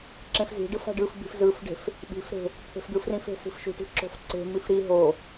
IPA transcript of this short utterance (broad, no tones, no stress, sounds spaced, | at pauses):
ǁ ẽ f z i̤ ɖ ɯ f a̤ ɖ ɯ f b i̤ f z ɯ f ɖ e̤ f | ɓ i̤ f ɾ e̤ | t̪ʰ e̤ f d̪ ɯ f r ĩ f e̤ s i̤ f ʃ ṳ ʈ i̤ ǁ o̤ f ǀ e̤ m i f ɾ i ɦ o